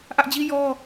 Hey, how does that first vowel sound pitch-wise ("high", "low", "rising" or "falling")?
high